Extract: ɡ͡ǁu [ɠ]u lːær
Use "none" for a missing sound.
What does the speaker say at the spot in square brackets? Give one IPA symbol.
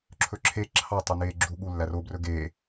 ɠ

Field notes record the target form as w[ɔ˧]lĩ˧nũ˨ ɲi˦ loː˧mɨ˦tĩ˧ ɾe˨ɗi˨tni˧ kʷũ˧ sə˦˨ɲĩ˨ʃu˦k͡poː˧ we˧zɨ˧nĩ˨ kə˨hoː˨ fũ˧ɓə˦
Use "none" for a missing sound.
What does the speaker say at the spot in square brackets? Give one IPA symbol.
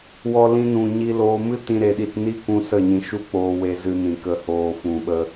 ɔ˧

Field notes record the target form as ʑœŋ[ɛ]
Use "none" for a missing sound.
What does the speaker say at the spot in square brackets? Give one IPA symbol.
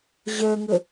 ə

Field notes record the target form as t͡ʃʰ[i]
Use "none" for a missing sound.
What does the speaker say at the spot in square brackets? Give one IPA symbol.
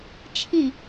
ĩ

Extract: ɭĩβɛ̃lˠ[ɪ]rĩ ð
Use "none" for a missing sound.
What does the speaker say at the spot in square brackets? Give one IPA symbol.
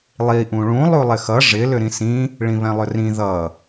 ʏ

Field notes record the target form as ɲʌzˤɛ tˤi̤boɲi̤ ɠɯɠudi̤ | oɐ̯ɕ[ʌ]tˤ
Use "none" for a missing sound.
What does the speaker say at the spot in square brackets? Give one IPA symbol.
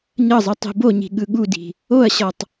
ʌ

